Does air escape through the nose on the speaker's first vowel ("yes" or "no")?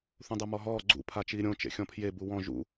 yes